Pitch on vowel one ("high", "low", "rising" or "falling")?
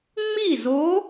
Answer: falling